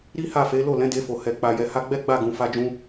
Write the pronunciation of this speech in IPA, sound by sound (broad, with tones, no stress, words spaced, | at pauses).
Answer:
ɾi˦ha˦˨fe˨˦ lo˦˨lɛ̃˨˦de˧fo˨ hɛ˨k͡pa˨jɛ˨ ha˧ɡ͡bɛ˦ɡ͡ba˦˨ɡũ˨ fa˧d͡ʒũ˧